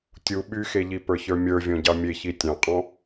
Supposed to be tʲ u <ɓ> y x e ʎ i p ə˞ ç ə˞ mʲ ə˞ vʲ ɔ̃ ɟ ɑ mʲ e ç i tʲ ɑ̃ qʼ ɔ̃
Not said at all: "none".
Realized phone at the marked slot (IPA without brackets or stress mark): ɓ